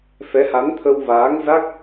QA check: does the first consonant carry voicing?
no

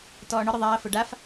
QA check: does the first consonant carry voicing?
no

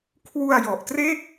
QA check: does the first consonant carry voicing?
no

